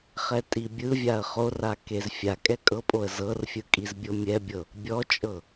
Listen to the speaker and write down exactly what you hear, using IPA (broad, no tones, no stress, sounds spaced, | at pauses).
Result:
χ ɛ tʼ i bʲ ɯ vʲ a ə̯ χ o r a k e z fʲ a kʼ ɛ kʼ ɤ pʼ o ə̯ z ɤ r fʲ ɯ kʼ i z bʲ o mʲ ɛ bʲ ɤ | bʲ ɔ t͡ʃʼ ɤ